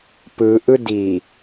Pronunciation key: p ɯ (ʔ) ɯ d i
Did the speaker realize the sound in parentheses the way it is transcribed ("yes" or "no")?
yes